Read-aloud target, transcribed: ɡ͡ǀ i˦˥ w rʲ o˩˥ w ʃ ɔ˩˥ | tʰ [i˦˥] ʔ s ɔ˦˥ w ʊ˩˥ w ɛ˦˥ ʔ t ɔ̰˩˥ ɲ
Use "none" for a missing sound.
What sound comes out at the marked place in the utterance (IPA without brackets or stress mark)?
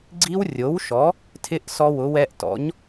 ɪ˦˥